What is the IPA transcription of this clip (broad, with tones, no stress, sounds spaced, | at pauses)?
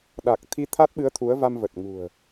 ɗ a˨˩ k̚ t̪ʰ i˧ t̪ʰ a˦˥ t̚ ɓ ɨ˨˦ ə̯ t̪ʰ u˨˦ ə̯ v a˧ m v ə˨˩ t̚ ŋ ṳ˨˩ ə̯